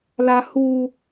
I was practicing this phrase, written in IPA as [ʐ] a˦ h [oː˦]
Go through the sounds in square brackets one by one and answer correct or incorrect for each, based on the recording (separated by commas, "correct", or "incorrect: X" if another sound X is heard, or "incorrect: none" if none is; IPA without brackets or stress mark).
incorrect: l, incorrect: uː˦